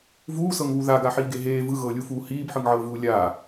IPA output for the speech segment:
vuːsɤŋβu ðaɡaħiːɡe ɦeː vɯɣɤːlʲufuː hiːbħɯŋʕɤːvuː lʲaː

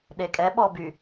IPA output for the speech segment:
ɗekʼɛɓɔ by

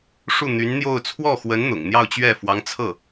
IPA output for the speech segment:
ʂu˥˩n̪y˧˥nn̪jo˥˧ʊ̯ t͡sʰwɔ˥˩xwə˧˥n n̪ʊ̰˨˩ŋn̪jɑ˥˧ʊ̯ t͡ɕɥɛ˥˩ fwɑ˧˥ŋt͡sʰɤ˥˩

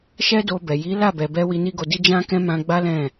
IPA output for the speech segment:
ʃɛ˦do˧bɛ˨ ji˨˦ la˦˨bɛ˨bɛ˧ wi˧ni˦ɡo˧di˦ d͡ʒã˦kɛ̃˦ mã˧ ɡ͡ba˦ lɛ̃˦˨

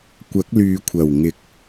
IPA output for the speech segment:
kʷɐ˨˥k̚lyː˨kʷʰɐ˨˩wŋɪ˨˥k̚

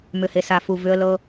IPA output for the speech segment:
mʏ˨he˨ sa˨fu˨ vʏ˦ə̯lɤ˦

